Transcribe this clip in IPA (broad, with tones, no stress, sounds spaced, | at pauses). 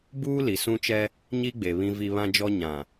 b uː˦ l i˨ s ũ˦ t͡ʃ ɛ˦ | ɲ i˦ ɡ͡b e˨ β ĩ˨ v i˨ β ã˦ d͡ʒ ɔ˦ ɲ ã˨